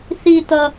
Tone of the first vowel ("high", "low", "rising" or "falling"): high